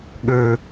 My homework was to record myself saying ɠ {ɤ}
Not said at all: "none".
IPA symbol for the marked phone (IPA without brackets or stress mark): ɵ